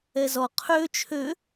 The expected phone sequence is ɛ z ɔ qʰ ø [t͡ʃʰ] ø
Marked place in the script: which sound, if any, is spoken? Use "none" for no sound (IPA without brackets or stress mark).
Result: t͡ʃʰ